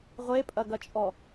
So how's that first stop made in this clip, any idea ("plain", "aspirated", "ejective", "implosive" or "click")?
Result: ejective